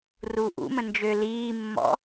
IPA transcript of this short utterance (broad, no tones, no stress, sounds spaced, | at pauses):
r uː ʔ ṵ m ə̃ n d͡ʒ ø l iː mː ɔ̰